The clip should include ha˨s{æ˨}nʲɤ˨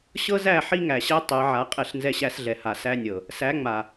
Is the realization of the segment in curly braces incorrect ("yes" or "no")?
yes